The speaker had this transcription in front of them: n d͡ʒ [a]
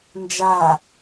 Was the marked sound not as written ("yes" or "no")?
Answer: no